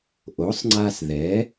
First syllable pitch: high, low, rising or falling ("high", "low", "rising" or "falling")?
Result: rising